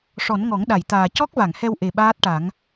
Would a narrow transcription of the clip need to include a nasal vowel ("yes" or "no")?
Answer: no